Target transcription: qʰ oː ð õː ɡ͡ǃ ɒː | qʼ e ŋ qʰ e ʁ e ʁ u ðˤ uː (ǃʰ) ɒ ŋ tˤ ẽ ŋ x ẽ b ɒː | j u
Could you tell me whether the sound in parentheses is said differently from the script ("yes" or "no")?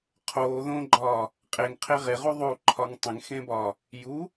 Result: no